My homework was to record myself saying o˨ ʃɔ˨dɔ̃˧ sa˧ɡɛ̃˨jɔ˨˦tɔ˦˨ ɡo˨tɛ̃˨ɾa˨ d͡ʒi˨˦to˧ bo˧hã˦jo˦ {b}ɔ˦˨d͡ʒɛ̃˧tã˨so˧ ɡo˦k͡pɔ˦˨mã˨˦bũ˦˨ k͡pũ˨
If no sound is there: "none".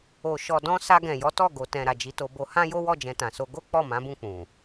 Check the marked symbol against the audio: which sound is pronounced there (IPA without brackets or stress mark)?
w